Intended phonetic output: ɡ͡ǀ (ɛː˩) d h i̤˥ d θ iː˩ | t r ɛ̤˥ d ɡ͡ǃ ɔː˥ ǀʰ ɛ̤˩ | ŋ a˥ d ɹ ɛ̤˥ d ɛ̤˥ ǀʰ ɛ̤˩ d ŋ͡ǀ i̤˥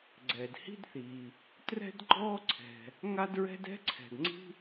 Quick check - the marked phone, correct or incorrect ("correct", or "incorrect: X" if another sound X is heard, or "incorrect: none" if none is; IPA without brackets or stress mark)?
correct